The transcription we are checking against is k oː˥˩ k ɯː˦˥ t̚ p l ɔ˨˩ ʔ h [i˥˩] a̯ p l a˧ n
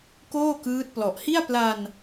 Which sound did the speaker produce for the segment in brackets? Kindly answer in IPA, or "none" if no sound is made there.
i˥˩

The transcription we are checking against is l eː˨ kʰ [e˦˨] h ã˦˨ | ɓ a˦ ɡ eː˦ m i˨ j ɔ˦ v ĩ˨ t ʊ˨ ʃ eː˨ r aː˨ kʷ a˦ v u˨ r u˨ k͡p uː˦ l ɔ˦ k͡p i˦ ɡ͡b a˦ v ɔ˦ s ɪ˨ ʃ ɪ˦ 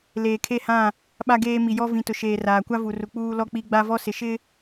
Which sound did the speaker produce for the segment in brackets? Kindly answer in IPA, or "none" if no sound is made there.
e˦˨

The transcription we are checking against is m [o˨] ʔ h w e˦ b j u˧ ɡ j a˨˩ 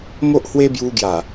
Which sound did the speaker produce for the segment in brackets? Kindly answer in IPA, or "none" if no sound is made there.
o˦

